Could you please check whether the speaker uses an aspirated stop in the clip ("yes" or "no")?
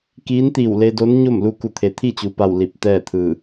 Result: yes